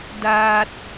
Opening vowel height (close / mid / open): open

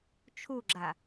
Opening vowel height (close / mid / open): close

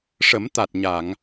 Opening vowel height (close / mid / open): mid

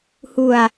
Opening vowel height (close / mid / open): close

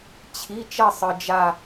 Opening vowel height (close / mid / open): close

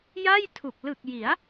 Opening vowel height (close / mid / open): open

